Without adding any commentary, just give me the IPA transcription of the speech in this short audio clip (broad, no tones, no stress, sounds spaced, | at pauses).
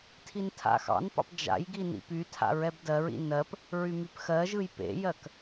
tʰ i n tʰ a̰ x ɑ̰ n p ɑ̰ p d͡ʒ a̰ j ɡ i n ḭ p y tʰ a̰ ɹ ɛ b d ɜ ɹ ḭ n ɜ p | ɹ y m y p x ɜ ʒ ɯ j p ḛ j ɜ k